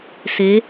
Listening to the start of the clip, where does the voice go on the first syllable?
rising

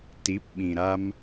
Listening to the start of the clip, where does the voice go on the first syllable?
rising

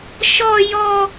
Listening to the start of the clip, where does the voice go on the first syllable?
high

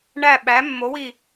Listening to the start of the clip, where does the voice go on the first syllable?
falling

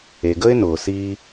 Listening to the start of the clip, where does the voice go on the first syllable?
low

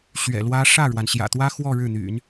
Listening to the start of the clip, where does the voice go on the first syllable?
low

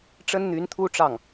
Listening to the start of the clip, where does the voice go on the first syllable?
high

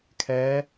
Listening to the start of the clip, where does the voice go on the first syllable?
rising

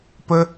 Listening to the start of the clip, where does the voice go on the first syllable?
high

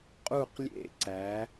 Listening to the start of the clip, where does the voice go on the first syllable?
falling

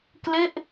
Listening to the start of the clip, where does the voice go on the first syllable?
falling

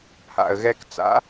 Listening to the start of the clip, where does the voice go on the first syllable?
low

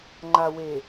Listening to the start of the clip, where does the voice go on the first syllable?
low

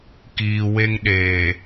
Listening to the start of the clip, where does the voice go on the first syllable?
low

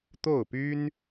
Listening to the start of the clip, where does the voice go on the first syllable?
falling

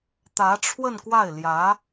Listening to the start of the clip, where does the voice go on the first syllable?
rising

